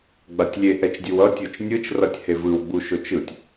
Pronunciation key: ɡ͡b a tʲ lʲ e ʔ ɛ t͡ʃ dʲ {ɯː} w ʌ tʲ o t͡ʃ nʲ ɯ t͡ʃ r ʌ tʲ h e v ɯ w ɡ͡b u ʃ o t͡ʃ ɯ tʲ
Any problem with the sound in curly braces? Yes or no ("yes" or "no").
yes